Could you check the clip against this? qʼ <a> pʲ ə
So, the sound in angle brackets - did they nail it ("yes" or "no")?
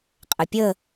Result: no